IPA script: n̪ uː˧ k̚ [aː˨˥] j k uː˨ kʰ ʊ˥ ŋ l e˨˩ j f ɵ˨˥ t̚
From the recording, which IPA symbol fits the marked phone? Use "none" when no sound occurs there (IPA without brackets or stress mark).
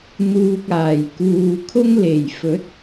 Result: aː˨˩